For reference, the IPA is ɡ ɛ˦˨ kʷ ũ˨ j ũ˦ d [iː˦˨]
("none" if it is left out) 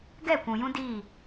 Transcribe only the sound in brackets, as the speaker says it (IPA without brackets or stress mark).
iː˦˨